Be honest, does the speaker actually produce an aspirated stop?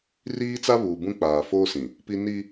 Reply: no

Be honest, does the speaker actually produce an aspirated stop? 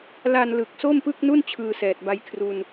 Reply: yes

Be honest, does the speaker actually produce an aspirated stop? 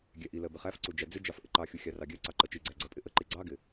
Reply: no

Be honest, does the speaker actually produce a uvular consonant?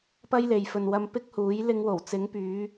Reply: no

